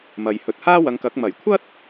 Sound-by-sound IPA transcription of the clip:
mɐ˨jhɵ˧t̚ haː˥wɐ˨˧ŋkɐ˨˥k̚ mɐ˨˩jkʷʰɐ˥t̚

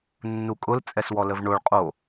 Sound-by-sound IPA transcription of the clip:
nːukʼʊl t͡sʼɛswɔləvɳoɭ qʼo

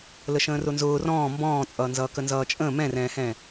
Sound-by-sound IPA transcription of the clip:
ləʃə̃ːrʊnzʊː rɔ̃ː mbɔ̃ːt͡sʼʌːnzʌː kənzʌːt͡ʃʼə̃ː mɛ̃rɛ̃ːhɛ̃

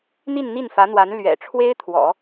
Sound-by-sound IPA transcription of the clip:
n̪i˥˧nn̪i˥˩nfä˧˥n̪wa˧˥n lɥɛ̰˨˩ ʈ͡ʂʰwe˥ɪ̯t̪ʰwɔ̰˨˩˦

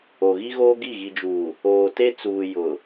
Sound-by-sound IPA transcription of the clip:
o˨ɣi˦ɣoː˦ɡi˦˨ ɣi˨d͡ʒuː˨ | oː˨te˦t͡suː˨ jʊ˨

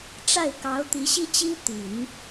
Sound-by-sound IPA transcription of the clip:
ʈ͡ʂa˥˩ɪ̯kɑ˧˥ʊ̯t̪i˧˥ ɕi˥t͡ɕi˥ t̪i˨˩˦n

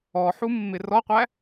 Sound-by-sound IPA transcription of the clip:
ɔħumːɪ rɔqʷæ

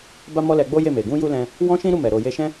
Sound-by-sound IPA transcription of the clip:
ba˦mɔ˦lɛ˧ ɡ͡bo˦je˦˨ me˨ ɡũ˧ju˧ lɛ̃˧ | wɔ̃˦ʃĩ˦ɾu˦˨ mɛ˨ ɾo˨je˧ʃɛ̃˦

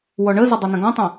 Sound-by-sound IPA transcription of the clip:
wɔɳəzə dˤʌnə̃ɡɔ̃tˤũ

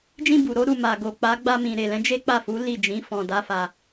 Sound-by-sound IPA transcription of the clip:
d͡ʒĩ˧ bu˨ɾo˨˦ ɾu˦˨ma˨ ɡo˨k͡pa˨˦ ɡ͡ba˧mĩ˨ ɾe˨lɛ̃˨˦ d͡ʒe˦ k͡pa˦˨fu˨˦li˦˨ d͡ʒĩ˨˦ fɔ̃˧da˦fa˧

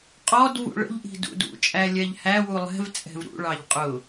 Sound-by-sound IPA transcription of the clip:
qʼɔd vṵɭə̰ʎʔi̤ dṵdṵt͡ʃʼæ lʲɛʎhæwu lˠɛ̤vt͡sʼɛ̤v ɾṵɭɑʎ qʼʊ

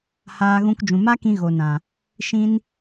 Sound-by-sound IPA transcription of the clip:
haː˧ɣũ˧k d͡ʒũ˨ma˦kĩ˧ ɣo˨nã˨ | ʃĩ˧n

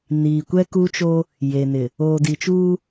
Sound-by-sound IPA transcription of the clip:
niː˨kʷɛ˦ku˦t͡ʃo˦ | je˨nɪ˨ | oː˨di˨t͡ʃuː˦

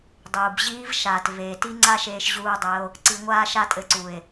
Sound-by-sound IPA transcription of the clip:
dˤuː˨b ʑiː˦v ʃaː˨t ve˨ti˦ ŋ͡ǀa˦ʃeː˧ʃ ʑuː˧dˤɘ˧o̯ | ǀi˨ ŋʷaː˧ʃa˧ tʼɘ˧ǀu˨e̯

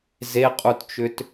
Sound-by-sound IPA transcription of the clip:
zeqʼutt͡ʃʏt

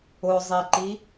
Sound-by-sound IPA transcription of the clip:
ʊzˤiǃi

